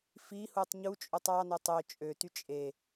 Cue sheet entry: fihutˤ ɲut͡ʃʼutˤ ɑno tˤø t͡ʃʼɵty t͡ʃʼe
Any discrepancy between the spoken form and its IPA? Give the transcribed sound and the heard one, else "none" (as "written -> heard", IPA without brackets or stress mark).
ɵ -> ø